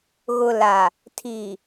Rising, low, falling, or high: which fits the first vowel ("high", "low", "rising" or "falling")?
low